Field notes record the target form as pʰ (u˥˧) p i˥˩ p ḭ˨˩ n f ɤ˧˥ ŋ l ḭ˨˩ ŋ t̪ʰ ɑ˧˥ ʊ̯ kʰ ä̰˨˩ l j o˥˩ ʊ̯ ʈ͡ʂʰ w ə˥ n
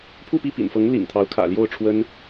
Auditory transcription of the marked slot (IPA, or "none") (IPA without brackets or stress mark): u˥˧